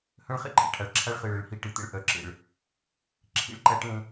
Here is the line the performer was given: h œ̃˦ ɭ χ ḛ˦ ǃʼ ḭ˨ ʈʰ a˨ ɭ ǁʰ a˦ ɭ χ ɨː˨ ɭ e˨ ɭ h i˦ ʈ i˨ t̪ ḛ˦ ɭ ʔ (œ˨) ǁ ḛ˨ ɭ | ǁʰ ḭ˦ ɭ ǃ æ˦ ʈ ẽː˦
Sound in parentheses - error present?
no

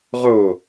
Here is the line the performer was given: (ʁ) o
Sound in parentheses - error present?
no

